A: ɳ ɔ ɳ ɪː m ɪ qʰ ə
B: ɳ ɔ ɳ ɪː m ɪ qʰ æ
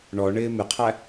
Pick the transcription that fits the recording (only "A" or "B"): B